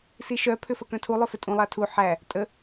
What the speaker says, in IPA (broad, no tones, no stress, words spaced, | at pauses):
siʃœ pʰʏfəkœ̃tʰu lˠʏfʏtʼũ lˠatʰu ħæ | tʼə